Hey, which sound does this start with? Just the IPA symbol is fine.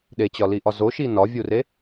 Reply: ɗ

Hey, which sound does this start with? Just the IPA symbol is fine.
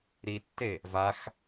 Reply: ɾ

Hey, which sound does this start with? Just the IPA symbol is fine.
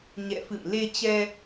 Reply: ɲ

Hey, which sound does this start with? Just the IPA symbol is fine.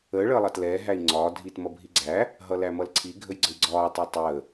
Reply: əː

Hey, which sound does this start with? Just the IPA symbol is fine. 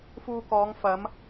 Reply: f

